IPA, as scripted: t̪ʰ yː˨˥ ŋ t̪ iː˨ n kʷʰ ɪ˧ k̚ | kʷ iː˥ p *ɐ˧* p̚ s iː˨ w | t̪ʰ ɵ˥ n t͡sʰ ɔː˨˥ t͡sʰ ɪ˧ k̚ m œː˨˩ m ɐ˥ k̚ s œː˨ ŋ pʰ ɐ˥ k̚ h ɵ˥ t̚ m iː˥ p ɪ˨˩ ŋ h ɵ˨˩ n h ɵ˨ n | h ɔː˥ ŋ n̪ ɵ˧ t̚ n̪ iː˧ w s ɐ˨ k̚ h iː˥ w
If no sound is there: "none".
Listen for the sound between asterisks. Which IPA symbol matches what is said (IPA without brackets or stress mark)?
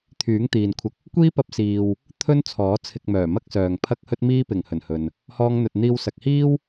ɐ˧